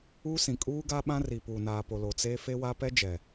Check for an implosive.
present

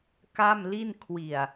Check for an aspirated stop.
present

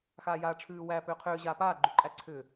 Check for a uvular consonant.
present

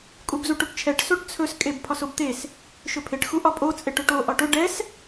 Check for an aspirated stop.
present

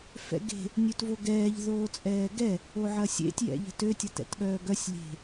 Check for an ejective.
present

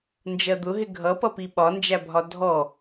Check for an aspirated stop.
absent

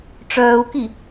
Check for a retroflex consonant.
present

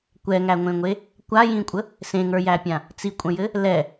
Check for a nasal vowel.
present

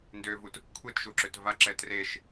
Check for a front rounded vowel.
present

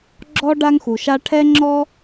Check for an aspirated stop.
present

